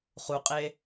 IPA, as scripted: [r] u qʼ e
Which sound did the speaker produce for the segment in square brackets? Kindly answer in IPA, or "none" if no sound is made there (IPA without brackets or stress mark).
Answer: χ